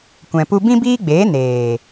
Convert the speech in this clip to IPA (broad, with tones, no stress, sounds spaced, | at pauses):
kʷ ɛ̃˧ p u˦ b ĩ˦ b iː˦ ɡ͡b eː˨˦ n eː˨